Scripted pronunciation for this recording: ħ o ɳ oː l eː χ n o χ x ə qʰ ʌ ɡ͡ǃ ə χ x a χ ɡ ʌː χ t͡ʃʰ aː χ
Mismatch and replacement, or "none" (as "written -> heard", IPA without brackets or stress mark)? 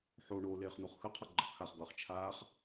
none